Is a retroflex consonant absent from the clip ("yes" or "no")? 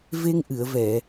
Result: yes